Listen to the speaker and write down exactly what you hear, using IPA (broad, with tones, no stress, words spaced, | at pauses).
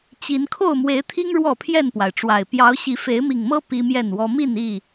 t͡ɕi˨˦n kʰo˥˨ʊ̯mwe˨˦ɪ̯t̪ʰi˦ŋ ɻwɔ˥˨pʰjɛ˥˨npwa˩ɪ̯ʈ͡ʂwa˨˩ɪ̯ pjɑ˨˦ʊ̯ɕi˨˦ fe˨˦ɪ̯mi˨˩ŋmɤ˦ pi˦mjɛ˥˨nwɔ˦ mi˥˨ni˥˨